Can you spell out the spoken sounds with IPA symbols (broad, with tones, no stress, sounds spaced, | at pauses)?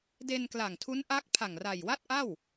d e˧ n k l a˨˩ ŋ tʰ u˦˥ n ʔ a˦˥ k̚ pʰ a˨˩ ŋ r a˨˩ j w a˥˩ t̚ ʔ a˥˩ w